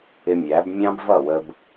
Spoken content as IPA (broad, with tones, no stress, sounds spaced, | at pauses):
ɪ˧ mʲ æ˨˦ b mʲ ɑ̃˦ b v ʌ˦˨ w ə˧ b